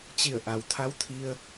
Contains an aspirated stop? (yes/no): yes